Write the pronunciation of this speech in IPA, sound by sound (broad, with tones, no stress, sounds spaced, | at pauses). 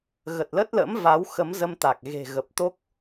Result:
ɣ ə˨˩ t̚ l ə˦˥ t̚ l ə̰˧˥ m v a˨˦ w x ə˨˦ m z ə˧ m t̪ a˨˩ k̚ ɣ e̤˨˩ ɣ ə˨˩ p̚ t̪ o˦˥ k̚